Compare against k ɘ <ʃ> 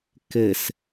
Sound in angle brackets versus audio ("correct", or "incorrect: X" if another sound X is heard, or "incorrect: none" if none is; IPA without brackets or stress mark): incorrect: s